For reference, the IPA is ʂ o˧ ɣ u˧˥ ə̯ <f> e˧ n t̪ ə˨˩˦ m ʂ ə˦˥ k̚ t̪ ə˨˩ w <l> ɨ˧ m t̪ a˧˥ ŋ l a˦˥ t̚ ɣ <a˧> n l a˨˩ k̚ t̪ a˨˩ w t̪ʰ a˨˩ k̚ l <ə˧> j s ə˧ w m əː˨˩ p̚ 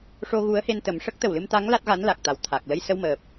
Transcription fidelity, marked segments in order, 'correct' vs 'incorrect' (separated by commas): incorrect, correct, incorrect, correct